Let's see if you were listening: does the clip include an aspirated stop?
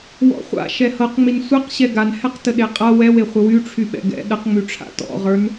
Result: yes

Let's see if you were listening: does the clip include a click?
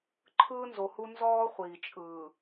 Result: yes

